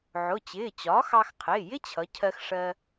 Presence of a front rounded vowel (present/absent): absent